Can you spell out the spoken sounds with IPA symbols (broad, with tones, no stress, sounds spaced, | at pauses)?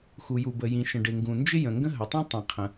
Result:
x u˩ j u˩ b ə˩ j ĩ˩ ʃ ə̃˩ ɖ ɪ˩ ŋ ɡ ũ˩ n d͡ʒ ɪ˥ j ə̃˩ ŋ ɡ ə̃˥ ɦ ə˩ tˤ ũ˥ tˤ ĩ˩ qʰ ə̃˩